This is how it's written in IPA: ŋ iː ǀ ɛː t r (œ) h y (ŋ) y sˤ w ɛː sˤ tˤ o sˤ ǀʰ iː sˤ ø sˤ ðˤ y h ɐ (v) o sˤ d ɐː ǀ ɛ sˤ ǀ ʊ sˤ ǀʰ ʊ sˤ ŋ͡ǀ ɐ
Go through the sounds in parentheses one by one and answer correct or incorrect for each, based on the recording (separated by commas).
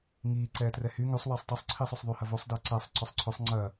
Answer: incorrect, correct, correct